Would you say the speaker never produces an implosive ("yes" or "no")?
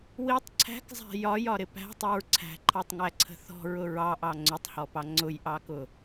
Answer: yes